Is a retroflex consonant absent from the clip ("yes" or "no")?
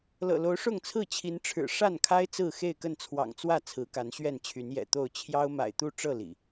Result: no